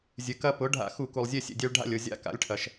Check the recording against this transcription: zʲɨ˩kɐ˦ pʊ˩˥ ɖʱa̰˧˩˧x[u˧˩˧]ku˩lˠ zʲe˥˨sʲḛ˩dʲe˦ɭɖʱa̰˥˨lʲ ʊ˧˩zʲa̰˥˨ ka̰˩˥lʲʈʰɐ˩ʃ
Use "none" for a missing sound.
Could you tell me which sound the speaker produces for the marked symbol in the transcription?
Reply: u˧˩˧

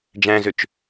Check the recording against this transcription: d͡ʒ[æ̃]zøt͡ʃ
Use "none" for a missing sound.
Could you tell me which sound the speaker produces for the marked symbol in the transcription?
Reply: æ̃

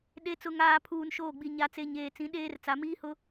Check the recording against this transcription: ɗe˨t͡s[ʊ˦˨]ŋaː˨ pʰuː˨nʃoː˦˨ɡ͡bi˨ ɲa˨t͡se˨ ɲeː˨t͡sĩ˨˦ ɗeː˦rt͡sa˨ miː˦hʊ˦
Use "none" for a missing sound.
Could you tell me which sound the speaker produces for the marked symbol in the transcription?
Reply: ʊ˨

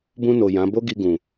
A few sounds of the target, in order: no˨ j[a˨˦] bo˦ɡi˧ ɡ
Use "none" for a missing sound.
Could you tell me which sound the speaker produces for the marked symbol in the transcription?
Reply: ã˨˦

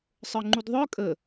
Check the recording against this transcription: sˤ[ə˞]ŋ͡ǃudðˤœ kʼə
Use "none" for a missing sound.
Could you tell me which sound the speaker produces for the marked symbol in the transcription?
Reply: ə˞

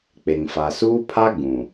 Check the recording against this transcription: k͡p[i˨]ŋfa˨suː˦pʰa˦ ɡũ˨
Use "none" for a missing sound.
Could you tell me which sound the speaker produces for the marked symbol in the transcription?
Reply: e˨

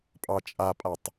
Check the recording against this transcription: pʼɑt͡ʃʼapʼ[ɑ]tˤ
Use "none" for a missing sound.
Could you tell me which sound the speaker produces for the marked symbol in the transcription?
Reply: a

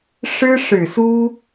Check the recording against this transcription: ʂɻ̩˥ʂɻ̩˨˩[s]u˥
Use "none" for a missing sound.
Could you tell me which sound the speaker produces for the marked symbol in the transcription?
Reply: s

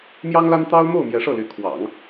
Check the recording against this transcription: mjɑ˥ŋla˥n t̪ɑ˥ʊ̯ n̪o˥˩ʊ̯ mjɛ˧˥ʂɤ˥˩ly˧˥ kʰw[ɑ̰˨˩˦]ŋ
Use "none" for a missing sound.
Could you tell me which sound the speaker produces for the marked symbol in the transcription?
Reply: ɑ̰˨˩˦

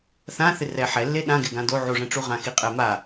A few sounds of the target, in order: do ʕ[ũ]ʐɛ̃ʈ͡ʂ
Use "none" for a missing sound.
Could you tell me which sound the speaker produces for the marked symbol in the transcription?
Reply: u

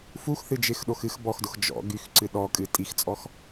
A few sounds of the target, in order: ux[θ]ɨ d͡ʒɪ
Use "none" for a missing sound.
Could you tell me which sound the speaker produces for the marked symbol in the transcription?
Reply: θ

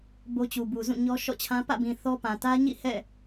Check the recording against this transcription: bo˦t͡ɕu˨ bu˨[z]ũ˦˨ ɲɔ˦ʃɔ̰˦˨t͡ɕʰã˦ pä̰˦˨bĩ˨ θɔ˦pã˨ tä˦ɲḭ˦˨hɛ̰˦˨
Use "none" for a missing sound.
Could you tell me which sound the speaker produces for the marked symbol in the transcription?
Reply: z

